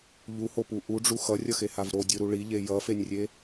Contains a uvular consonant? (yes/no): no